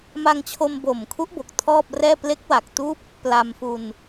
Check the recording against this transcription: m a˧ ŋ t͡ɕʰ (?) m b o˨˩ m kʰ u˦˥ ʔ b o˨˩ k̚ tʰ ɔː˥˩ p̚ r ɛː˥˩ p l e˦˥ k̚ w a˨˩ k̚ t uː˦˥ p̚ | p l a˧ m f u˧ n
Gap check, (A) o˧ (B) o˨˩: A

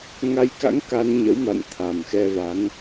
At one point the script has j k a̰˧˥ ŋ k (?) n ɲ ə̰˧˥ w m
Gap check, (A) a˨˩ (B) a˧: B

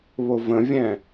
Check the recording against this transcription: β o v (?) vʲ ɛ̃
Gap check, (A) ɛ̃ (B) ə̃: B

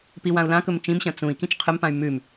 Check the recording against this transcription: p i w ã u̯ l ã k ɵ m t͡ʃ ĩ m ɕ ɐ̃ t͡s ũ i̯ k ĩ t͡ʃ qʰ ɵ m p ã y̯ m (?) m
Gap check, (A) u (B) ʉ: B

